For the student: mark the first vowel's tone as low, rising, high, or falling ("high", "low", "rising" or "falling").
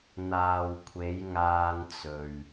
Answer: low